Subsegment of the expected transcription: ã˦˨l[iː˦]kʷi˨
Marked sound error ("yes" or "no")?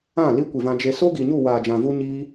yes